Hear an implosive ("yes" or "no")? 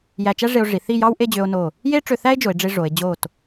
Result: no